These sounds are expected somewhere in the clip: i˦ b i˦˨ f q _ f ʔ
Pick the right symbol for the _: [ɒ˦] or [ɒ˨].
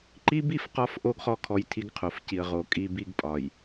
ɒ˦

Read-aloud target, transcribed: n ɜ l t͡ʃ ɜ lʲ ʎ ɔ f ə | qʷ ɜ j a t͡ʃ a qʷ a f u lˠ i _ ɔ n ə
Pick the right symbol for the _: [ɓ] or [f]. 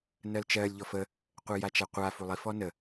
f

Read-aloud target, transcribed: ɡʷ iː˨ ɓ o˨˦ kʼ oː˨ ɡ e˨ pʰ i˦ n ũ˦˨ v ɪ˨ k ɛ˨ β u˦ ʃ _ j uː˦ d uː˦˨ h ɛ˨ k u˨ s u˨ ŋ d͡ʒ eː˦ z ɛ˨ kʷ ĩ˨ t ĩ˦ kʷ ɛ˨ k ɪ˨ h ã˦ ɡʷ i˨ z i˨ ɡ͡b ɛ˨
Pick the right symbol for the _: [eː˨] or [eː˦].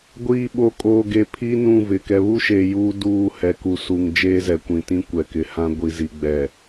eː˨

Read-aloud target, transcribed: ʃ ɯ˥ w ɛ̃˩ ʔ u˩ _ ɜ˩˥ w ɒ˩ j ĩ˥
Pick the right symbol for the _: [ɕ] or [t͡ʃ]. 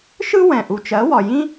t͡ʃ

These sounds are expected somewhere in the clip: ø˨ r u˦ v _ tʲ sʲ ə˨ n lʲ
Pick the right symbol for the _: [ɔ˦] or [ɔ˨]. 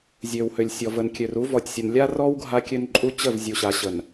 ɔ˨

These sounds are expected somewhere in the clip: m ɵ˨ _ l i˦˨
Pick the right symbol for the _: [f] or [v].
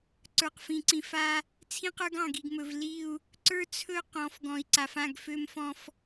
v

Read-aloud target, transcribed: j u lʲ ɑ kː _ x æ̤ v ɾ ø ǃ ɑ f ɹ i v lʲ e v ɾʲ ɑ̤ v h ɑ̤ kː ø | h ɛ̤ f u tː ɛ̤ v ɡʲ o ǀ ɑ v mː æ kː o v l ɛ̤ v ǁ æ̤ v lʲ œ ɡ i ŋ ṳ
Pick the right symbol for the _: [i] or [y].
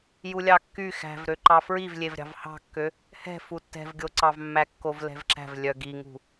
y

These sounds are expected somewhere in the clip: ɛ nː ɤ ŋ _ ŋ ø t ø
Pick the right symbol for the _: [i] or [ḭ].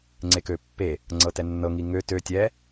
i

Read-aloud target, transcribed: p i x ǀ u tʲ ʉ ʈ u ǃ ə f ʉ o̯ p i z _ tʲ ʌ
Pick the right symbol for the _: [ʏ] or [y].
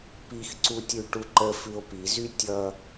y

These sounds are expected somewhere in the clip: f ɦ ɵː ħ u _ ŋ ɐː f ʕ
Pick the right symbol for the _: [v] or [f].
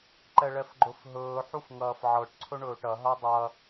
f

